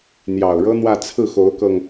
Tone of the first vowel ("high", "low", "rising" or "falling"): low